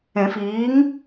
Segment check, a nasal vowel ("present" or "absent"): present